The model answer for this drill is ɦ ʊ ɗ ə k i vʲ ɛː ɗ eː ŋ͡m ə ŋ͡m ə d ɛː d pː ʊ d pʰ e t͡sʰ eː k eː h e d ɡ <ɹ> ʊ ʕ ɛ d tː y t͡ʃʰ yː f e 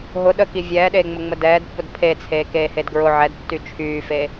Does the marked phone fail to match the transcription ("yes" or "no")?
no